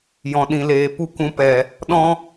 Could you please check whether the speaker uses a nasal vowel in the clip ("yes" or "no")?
yes